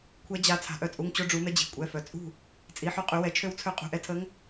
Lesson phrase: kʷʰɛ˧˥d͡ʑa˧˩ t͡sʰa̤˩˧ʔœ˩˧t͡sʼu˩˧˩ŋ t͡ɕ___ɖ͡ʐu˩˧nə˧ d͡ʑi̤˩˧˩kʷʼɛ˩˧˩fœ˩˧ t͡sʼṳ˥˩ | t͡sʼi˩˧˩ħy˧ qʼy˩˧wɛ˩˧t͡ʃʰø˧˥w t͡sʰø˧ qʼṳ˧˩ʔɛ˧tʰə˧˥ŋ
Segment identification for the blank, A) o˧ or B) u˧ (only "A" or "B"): A